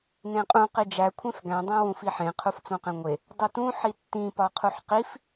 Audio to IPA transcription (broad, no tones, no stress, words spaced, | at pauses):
nẽqʼũ qid͡ʒæ kʷʰẽfɡæ̃ dˤæ̃wũfiħẽ qʰuft͡sõqẽŋʷe | dˤotũ ħitːĩ pɒqʰuħqif